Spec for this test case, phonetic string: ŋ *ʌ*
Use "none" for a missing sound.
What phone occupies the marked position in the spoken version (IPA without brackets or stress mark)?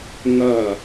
ʌ